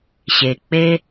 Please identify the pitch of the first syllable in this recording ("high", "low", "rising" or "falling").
low